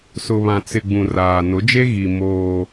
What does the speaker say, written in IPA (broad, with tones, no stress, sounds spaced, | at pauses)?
s ʊ˨ β ã˨ t͡s ɪ˨ ɡ͡b ũ˨ r aː˨ n ʊ˨˦ d͡ʒ e˦ ɣ i˨ m oː˦